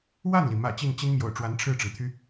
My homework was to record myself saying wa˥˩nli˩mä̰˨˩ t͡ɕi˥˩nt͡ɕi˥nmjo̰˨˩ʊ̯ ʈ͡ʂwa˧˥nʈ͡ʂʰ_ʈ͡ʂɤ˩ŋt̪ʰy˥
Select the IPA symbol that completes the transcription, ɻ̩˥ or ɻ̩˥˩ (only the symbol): ɻ̩˥˩